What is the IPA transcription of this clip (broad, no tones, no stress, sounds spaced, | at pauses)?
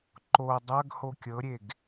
ǃ o dˤ ɐ ɡ h o kʲ ɤ ɾʲ e ɡ